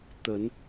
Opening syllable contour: rising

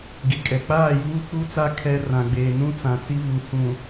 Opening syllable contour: low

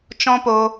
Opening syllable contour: high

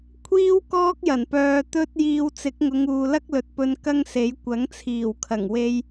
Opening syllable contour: high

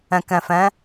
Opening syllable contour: low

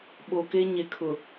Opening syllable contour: low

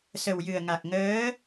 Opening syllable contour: low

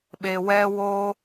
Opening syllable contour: low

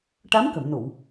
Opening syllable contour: rising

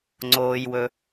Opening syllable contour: low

